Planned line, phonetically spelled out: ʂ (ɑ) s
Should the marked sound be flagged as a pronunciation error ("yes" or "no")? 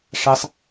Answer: no